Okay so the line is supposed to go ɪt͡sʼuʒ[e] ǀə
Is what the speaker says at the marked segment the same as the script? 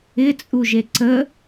yes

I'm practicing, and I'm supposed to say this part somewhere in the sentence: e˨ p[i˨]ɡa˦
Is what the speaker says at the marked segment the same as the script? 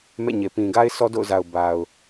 no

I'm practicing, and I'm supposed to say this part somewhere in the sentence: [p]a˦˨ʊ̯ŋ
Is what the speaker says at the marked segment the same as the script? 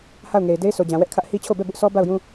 no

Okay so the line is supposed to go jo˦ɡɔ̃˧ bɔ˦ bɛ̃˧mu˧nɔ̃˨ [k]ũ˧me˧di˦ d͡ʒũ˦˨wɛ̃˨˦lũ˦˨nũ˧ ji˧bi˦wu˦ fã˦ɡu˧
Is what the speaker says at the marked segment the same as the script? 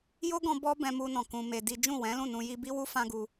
yes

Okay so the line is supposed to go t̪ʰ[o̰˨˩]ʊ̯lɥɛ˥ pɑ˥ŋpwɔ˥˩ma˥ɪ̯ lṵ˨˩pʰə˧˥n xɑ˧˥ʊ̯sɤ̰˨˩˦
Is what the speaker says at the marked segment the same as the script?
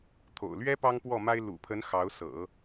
yes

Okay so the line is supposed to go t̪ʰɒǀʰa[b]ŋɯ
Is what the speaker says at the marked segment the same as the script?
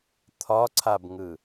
yes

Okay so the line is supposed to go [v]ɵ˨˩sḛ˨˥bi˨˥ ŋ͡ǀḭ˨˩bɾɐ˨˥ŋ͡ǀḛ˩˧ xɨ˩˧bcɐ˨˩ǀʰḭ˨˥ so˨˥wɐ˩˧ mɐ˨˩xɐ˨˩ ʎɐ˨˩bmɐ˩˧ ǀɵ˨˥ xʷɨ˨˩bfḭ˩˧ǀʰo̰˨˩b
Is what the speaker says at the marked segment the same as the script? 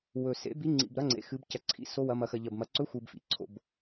no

